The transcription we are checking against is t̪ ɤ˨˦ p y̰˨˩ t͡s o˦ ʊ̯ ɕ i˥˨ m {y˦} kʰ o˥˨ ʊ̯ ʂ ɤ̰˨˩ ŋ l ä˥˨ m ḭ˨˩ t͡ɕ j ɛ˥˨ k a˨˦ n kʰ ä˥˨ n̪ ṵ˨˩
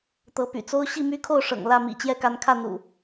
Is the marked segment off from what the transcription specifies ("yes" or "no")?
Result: no